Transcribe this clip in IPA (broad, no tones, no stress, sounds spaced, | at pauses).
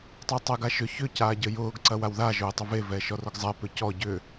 tˤ a tˤ ɛ ɡ a ʃ ʏ ç ʏ c aː ɟ ə j ʊː ɡ ǀ ɐ w a w ð a ʒ ʊː tˤ ə v e v ɛː ʃ ɔ r ʊ ɡ zˤ ɛ p ʏ c ɔ ɟ ʏ